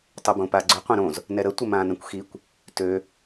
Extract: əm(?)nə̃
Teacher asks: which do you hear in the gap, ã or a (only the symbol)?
ã